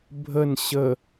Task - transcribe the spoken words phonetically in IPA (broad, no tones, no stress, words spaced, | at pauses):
bʱən ɕə